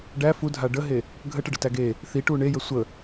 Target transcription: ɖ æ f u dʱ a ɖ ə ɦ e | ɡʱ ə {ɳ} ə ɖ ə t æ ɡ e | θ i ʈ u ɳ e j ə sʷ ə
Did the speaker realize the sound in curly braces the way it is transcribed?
no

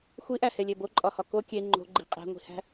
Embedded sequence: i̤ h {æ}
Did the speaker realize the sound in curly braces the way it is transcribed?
no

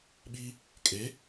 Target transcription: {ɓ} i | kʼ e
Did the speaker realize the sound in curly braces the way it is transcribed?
yes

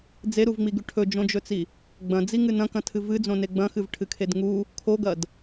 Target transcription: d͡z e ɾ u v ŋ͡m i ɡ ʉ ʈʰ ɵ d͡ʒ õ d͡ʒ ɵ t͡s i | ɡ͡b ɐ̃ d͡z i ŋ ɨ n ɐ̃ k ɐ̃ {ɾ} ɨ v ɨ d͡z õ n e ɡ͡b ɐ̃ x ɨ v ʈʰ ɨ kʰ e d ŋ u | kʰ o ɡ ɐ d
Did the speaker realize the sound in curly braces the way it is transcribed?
no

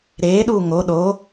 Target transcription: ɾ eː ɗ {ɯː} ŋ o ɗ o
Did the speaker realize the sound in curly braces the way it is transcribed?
no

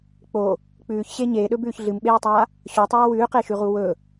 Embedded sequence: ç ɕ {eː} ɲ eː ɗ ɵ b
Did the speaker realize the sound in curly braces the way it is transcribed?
no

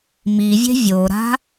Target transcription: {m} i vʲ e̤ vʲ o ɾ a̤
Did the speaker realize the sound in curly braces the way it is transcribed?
yes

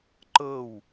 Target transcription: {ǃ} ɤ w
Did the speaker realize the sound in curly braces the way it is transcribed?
yes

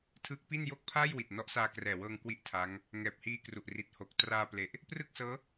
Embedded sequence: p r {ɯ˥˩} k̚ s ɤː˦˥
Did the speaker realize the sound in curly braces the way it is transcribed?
yes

